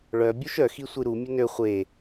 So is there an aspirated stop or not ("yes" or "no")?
no